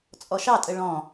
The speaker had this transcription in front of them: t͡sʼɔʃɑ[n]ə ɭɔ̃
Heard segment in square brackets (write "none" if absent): tʼ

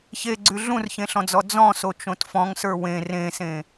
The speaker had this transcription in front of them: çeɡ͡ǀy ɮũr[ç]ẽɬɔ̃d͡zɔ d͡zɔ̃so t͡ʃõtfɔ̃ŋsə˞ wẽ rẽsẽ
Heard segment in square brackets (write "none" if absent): ç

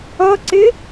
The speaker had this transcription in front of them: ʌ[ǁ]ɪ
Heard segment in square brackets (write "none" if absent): ǀ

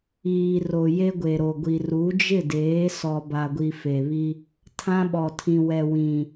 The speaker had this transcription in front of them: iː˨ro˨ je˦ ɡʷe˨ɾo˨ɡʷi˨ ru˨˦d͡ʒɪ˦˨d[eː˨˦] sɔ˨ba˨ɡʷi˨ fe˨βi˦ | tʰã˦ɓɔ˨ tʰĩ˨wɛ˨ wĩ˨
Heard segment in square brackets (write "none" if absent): eː˨˦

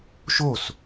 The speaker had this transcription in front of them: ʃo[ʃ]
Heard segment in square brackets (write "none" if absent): s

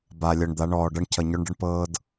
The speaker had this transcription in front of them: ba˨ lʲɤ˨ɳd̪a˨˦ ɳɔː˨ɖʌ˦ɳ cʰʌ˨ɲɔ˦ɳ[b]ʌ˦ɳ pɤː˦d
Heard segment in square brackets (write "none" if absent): ɖ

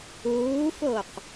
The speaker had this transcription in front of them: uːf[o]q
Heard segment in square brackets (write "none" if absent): o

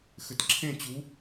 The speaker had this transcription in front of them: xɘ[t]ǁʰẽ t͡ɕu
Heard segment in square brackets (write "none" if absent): t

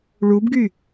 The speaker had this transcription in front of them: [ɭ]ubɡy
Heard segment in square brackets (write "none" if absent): ɭ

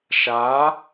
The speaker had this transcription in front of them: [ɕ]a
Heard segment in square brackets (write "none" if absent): ʃ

